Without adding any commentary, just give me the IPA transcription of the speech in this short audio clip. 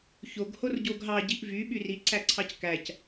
ç o ɡ h o r ɟ o ɡ ɦ ɑ ɟ i ʔ v y ɓ y r i ǀ æ ǀʰ ɑ c k æ c

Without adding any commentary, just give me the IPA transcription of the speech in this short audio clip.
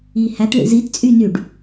i h æ t ɭ ḭ z i t t͡sʼ y n y ɖ

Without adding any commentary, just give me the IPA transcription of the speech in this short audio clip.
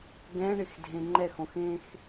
ɡ ɛ̃ ɳ ɪ x dʱ ẽ ŋ͡ǃ ɛ x õ x ẽ x

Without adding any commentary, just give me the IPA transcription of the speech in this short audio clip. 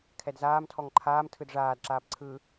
kʰ ɛ d z aː m tʰ ɔ ŋ ǃʰ aː m tʰ ɯ d ʐ aː d ǁ aː p ǀʰ ɯ

